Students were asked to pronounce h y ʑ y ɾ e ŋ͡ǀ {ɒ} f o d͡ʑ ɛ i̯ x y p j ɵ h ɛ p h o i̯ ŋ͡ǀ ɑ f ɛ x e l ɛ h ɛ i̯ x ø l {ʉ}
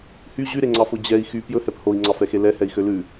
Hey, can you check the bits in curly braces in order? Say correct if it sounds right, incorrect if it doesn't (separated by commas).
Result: incorrect, correct